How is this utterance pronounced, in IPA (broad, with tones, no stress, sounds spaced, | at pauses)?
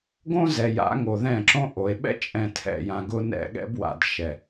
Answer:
ɡ õ˦ z ɛ˨ j a̰˨˦ ŋ o˨ ð ɛ̃˦˨ ǁ õ˦ ʔ o˨ e̯ ɓ ɛ̰˦ t͡ʃʼ ɛ̃˨ tʰ ɛ̰˨ j ã˨ ɡ ʊ˦ n ɛ̰˦˨ ɠ ɛ̰˦ b w a̰˨ d ʃ ɛ˨